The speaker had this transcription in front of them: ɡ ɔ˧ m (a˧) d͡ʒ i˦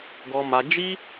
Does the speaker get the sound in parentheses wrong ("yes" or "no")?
no